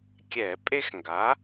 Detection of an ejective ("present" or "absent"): present